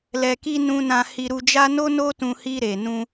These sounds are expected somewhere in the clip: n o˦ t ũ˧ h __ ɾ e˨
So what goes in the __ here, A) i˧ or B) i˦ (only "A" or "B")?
A